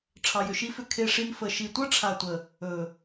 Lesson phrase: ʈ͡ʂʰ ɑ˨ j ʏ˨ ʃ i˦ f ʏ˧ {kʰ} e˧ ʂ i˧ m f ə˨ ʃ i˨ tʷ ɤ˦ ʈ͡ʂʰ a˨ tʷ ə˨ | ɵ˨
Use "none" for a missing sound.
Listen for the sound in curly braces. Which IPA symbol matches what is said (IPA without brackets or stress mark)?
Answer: kʰ